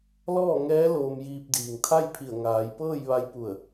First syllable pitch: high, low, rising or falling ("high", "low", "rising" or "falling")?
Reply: falling